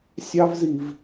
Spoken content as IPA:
sʲ ɑ˦ v z i˨ v

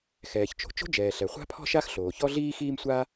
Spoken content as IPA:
x ɛː˩ ç t͡ʃ o̤˩ t͡ʃ o̤˥ d͡ʒ ɛː˩ ɬ ɛ˩ χʷ a̤˥ pʰ ɔ̤˥ ʃ a˥ x ɬ oː˩ ç ɔ˥ ɮ iː˥ x iː˥ m sʷ a˥

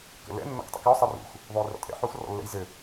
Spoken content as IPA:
k ə̰ l ɛ̰ nː ɔ̰ k tˤ ə̰ k ɔ sˤ ɘ r ṵ x | ðˤ u j r ɔ̰ tʼ ɛ̰ ħ u x r ɔ̰ lː ɛ̰ j z ɘ

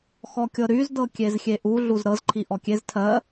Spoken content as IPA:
x ɔ kʲ ɤ ɾ y z d ɤ kʲ e z xʲ e ʔ u ɮ u z ɾ ɤ z ǃʰ i ʔ ɔ kʲ e z tʰ ɜ

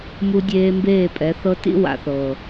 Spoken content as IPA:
m u˦ dʲ eː˦ m b eː˦˨ pʼ ɛ˨˦ θ ɤ˦ t ḭ˦ w a̰˨ θ ɤː˨

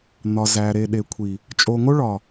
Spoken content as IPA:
n̪ ɒ˨ z æ˨ ɾ e˨ ɗ e˨ kʷʰ i˨ | t͡ʃʼ o˨ ŋ o˦ ɭ ɒ˨

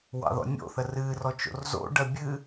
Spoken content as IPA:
w ɑ̰ ð ɔ̰ nʲ o̰ θ ə r ɨ r ɔ t͡ʃ o̰ r z o̰ ɖ ɜ bʲ ɨ

